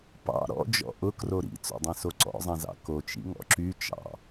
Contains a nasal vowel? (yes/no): yes